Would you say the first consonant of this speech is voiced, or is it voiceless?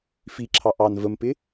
voiceless